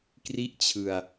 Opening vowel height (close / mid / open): close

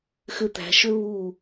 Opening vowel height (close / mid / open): close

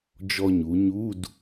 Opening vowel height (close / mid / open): mid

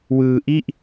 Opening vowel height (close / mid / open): close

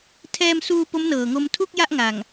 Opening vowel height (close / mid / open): mid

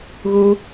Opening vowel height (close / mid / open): close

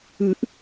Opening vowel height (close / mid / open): close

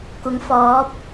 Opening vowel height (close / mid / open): close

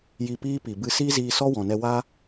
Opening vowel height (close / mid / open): close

